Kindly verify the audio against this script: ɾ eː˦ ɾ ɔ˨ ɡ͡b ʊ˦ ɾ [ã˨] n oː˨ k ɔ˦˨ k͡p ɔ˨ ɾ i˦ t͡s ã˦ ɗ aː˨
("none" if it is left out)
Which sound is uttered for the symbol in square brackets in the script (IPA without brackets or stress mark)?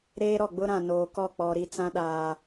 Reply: ã˨